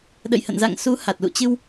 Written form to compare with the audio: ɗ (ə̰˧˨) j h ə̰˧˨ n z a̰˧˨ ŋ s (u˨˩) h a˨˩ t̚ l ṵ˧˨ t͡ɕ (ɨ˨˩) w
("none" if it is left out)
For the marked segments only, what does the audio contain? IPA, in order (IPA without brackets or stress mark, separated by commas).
ə̰˧˨, u˨˦, ɨ˧